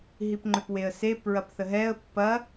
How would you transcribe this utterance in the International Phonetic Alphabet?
ɦ i p ŋ͡ǃ ʏ p w e ə̯ s e p ɹ ɐ p θ ə ɦ ɛ ə̯ pː ɐ

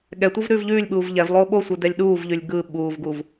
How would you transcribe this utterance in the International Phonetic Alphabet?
ɠ ɛ tʷ ɯ v ɾ ʉː v ʎ ʉː lʲ ɓ uː v ʎ ɛ v lˠ oː ɓ o sʷ ɯ d ɛ lʲ ɗ uː v ʎ ʉ lʲ ɡ ɯ ɓ uː v ɡ u v

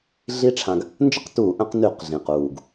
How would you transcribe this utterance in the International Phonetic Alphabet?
ɮ i˦˥ ʈ͡ʂʰ ã˧ ɡ | n d͡ʒ ə˥˨ q t uː˧˩˧ ʔ ə̃˧ q n y˧˩˧ q ɮ ĩ˨˩ q uː˨˩ ɡ

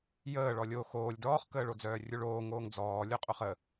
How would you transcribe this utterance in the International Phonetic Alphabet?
j əː ɭ ɔ lʲ o x oː lʲ d ɔː χ k əː ɭ o d͡z œː rʲ u ɭ oː ŋ oː ŋ d͡z ɔː lʲ o qʼ o χ ə

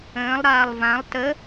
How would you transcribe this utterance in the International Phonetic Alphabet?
ə̃ː lˠ ɾ aː lˠ v ã lˠ t ə

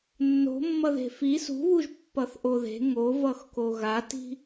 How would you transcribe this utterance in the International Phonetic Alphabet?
nː o̤ mː ʌ ð e̤ f i s ṳ β u ʒ pː ʌ θ ʔ o ð e̤ ŋ o v ʌ x k o ɣ a t i̤

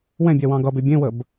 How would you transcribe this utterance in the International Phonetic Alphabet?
w ɛ̃ bʲ ɛ w ɑ̃ ɡ ʌ b e bʲ ẽ w ə b

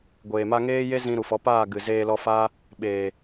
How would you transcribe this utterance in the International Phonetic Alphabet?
ɡʷ eː˨ m a˧ ŋ eː˦ j e˦ z ĩ˧ ɾ u˨ f ɔ˨˦ p aː˦˨ ɡ ɨ˨ z eː˧ l ɔ˧ f aː˦ | ɓ eː˨

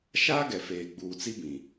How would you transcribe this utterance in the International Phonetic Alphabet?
ʃ aː˦ ɡ ɛ˨ f eː˨ ɡ͡b uː˨ t͡s i˦ b ĩ˨

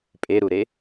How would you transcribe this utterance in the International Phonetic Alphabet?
pʼ e ɾ u ɾ e

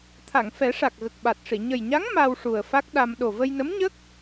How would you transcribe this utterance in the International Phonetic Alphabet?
t̪ʰ a˨˩˨ ŋ f ɛ˨˩˦ ʂ a˨˩ k̚ ɣ ə˨˩ k̚ ɓ a˨˩ t̚ ʂ i˨˩˨ ɲ ə˨˩ j ɲ a˧˥ ŋ m a˧ w ʂ u˨˩ ə̯ f a˦˥ k̚ ɗ a˧ m ɗ o˨˩ v ə˧ j n ə˧˥ m ɲ ə˦˥ k̚

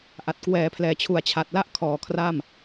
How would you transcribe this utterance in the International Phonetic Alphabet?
ʔ a˨˩ t̚ k w ɛː˩˦ pʰ l ɛː˩˦ t͡ɕʰ u˨˩ a̯ t͡ɕʰ a˨˩ t̚ l a˥˩ ʔ kʰ ɔː˨˩ kʰ r a˥˩ m

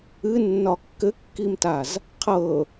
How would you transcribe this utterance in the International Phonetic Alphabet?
ɨ nː ɒ kː ɘ kː i m t a z | qʰ ɤ

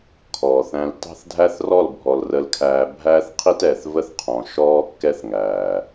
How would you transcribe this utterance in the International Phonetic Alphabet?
kʰ ɔː˨ θ æ̃˧ l t ɑ̤˦ θ dʱ æ˦ θ r ɔ˦˨ l bʱ ɔ˨ l r ə˧ l kʰ æː˧ bʱ æː˦ θ qʰ i˦ t ɛː˨ θ v ə˦ θ qʰ ɔ̃˨ ʃ ɔː˦ kː ɛ˦ θ ŋ æː˨

